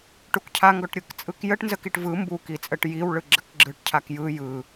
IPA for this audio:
ʈ u k cʰ a ŋ ɡ ɔ ʈ ɾʲ ɯ k t͡sʼ ɯ k j ə ʈ n z ə k i ʈ v ɯ m b u k i t͡sʼ ə ʈ j i w ɭ ɯ ɡ͡ǁ ə k ɡ͡ǁ ɯ ʈ cʰ a k j ɯ j ɯ

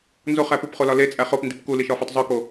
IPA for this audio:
n z o χ æ p u p χ o l ɒ l e t͡sʼ æ χ o p n d i p k u l i ʃ ɒ f o tˤ zˤ u k o

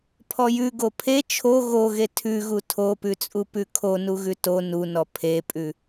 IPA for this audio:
pʰ ɔ j ʉ ɡ o pʰ e t͡ʃʰ o ɣ o ɣ e tʰ ʉ ɣ u tʰ o p ʉ t͡sʼ u p ʉ kʰ o n u ɣ ʉ t o n u n ɔ pʰ e pʼ ʉ

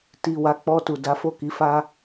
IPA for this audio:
t i˨ w a˨˦ k͡p ɔ˧ t u˨ d a˨˦ f o˦˨ k i˨˦ f a˦

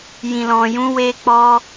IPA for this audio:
j ĩ˨ l ɔ̃˨ j ũ˨˦ w e˧ k͡p ɔ˧

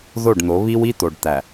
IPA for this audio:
ð o˦˨ ɖ n̪ o˨˦ β i˦ w i˦ t̪ o˨ ɖ t̪ æ˨

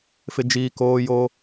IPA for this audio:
f ɪ˦ d͡ʒ iː˦ k oː˦ j o˦

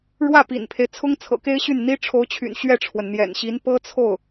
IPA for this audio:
ɻ w ä˥˩ p ḭ˨˩ n pʰ e˦ ɪ̯ t͡sʰ ʊ˥ ŋ t͡sʰ ɤ̰˨˩ k e˥ ɪ̯ ɕ y˥˩ n n̪ i˥ ʈ͡ʂʰ o˧˥ ʊ̯ t͡ɕʰ y̰˨˩ n ɕ ɥ ɛ˥˩ ʈ͡ʂʰ w ə˩ n n̪ j ɛ̰˨˩ n ɕ i˧˥ n p ɤ˥ t͡sʰ o˥˩ ʊ̯

